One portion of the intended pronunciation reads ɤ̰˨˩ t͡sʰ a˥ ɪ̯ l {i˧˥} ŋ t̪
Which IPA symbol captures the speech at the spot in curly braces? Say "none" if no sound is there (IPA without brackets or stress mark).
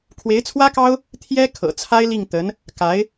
i˥˩